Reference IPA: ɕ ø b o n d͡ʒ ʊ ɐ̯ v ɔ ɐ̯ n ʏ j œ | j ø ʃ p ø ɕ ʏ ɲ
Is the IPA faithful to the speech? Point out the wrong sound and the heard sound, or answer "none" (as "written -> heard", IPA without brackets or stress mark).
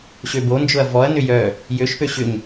none